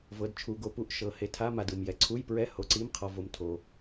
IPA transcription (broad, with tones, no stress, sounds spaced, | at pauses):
v ɤ˨˦ d t͡ʃʰ u˨˦ ɡ o˨˦ p u˧˥˧ ʔ ʃ ɤ˨ h e˨˦ tʰ a˧˥˧ m a˨ d ɯ˨ m j ɛ˨ ǀʰ u˧˥˧ j p ɹ ɛ˧˥˧ h o˨˦ ǀ i˧˥˧ m qʰ ɔ˨ v o˨ m tʰ o˨